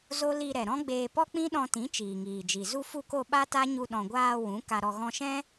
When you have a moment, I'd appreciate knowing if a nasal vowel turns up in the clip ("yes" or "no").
yes